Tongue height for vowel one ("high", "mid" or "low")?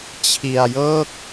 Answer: high